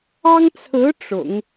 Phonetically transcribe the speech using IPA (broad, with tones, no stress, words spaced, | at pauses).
ɑ˥ŋt͡sʰɹ̩˧˥ ʈ͡ʂʊ̰˨˩˦ŋ